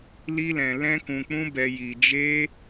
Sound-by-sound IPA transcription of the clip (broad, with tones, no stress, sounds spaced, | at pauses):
l i˦ l ɛ̃˧ l ɛ̃˦ k ũ˧ k͡p ũ˦ b ɛ˧ j i˧ d͡ʒ e˦